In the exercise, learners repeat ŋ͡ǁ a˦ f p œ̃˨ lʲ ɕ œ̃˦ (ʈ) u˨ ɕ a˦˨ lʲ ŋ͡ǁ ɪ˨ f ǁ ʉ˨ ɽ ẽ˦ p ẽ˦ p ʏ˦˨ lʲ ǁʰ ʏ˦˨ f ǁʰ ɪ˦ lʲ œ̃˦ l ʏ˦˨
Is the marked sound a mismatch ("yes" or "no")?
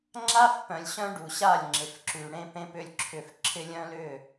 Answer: yes